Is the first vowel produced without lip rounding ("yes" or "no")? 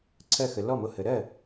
yes